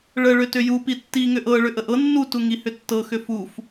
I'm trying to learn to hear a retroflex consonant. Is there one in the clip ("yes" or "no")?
yes